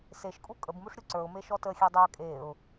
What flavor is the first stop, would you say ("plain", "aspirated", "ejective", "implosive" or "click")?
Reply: ejective